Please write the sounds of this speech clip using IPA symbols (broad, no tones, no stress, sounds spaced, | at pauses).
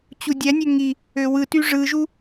t͡ɕ u dʲ æ nʲ ø ŋ i | ø w ɯ t y ʐ ɯ ʒ u